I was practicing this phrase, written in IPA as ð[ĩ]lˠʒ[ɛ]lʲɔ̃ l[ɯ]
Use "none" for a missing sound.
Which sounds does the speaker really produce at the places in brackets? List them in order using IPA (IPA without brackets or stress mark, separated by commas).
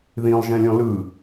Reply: ĩ, ɛ̃, ɯ